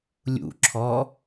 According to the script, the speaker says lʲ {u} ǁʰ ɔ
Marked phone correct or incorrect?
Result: incorrect